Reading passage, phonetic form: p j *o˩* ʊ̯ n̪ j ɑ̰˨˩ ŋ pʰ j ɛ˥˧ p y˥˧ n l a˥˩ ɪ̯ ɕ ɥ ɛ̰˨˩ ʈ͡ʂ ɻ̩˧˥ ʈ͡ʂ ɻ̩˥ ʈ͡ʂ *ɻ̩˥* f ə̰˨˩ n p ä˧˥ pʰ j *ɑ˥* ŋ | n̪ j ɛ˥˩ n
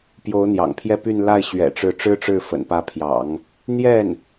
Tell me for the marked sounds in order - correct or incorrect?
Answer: incorrect: o˧˥, incorrect: ɻ̩˥˩, incorrect: ɑ̰˨˩˦

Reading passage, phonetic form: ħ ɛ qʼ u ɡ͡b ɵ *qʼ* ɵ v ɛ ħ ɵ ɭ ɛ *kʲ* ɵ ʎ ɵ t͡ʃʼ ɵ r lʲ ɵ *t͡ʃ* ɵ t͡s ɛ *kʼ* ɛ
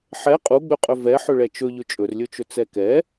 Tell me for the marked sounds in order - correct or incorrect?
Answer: correct, incorrect: t͡ʃ, correct, incorrect: k

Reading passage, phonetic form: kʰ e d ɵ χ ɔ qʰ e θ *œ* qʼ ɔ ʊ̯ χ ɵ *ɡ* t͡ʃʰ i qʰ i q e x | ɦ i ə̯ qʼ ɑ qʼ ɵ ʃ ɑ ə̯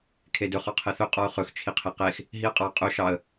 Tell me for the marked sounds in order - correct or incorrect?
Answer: incorrect: ɵ, incorrect: x

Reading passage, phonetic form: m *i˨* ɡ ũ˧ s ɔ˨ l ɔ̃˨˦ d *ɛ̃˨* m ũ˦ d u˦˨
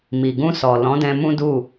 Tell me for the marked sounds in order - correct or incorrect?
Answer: correct, incorrect: ɛ̃˧

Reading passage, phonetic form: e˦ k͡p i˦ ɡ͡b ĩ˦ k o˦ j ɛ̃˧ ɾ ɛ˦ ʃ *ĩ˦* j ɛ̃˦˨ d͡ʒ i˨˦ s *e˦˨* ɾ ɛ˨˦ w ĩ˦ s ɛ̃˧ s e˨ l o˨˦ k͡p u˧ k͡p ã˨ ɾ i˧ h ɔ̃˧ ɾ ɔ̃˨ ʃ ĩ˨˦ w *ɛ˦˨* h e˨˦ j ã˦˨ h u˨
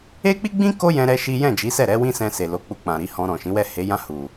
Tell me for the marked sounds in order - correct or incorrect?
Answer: incorrect: i˦, incorrect: ɛ˦˨, correct

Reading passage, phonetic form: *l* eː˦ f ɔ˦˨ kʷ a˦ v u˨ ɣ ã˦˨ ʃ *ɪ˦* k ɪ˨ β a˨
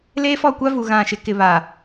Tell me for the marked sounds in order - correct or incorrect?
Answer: correct, correct

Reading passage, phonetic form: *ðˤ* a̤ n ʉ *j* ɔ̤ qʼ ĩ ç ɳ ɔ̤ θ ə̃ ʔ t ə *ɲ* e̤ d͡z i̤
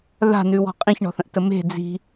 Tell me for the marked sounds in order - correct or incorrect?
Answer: incorrect: ð, incorrect: w, incorrect: m

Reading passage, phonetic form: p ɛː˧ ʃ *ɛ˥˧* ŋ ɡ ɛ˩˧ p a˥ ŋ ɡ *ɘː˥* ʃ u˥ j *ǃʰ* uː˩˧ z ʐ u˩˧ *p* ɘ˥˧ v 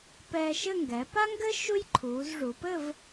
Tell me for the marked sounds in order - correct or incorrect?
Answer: incorrect: ɘ˥˧, correct, correct, correct

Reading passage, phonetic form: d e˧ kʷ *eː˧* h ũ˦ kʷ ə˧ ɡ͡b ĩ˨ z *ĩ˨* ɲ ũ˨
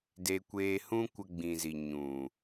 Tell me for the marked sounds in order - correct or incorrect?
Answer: correct, incorrect: i˨

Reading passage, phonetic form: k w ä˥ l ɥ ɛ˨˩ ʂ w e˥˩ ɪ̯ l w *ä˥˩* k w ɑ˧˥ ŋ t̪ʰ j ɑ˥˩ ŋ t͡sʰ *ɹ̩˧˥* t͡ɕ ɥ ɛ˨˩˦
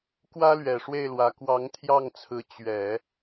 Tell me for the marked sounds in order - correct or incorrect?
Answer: incorrect: ä˧˥, correct

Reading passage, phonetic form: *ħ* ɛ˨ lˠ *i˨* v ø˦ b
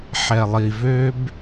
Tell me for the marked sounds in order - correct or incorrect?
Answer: correct, correct

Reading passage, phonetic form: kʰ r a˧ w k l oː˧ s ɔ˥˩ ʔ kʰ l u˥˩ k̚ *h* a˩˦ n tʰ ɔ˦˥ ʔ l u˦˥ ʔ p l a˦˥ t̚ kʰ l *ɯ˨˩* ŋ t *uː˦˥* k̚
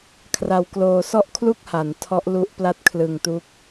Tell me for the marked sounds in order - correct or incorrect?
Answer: correct, correct, incorrect: u˦˥

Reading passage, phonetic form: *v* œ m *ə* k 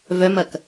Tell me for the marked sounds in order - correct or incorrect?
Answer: correct, incorrect: ɐ

